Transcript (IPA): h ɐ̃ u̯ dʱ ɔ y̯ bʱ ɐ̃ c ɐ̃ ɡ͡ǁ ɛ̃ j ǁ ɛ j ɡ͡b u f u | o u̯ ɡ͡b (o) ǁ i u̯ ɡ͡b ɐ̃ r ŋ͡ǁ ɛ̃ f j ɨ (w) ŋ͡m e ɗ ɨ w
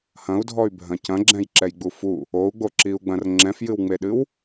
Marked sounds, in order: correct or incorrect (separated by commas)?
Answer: correct, correct